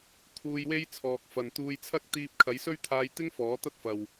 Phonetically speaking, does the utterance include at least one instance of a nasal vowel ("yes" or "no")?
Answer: no